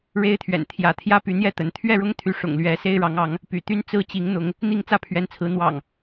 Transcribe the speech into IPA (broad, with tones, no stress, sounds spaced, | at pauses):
ɻ e˦ ɪ̯ t̪ʰ ɥ ɛ̰˨˩ n t̪ʰ j ä˨˦ t̪ʰ j ä˦ p y˨˦ n̪ j ɛ˥˨ t̪ ə˨˦ n t̪ʰ ɥ ɛ˥˨ ɻ ʊ˦ ŋ t̪ʰ y˨˦ ʂ ʊ̰˨˩ ŋ l ɥ ɛ˨˦ s e˦ ɪ̯ ɻ ɑ˨˦ ŋ ɑ˨˦ ŋ | p y̰˨˩ t̪ y˦ n t͡s ɹ̩˦ t͡ɕ i˨˦ ŋ n̪ ʊ˨˦ ŋ | n̪ i˥˨ ŋ t͡s ä˥˨ pʰ ɥ ɛ˨˦ n t͡sʰ ɹ̩˨˦ n̪ w ɑ̰˨˩ ŋ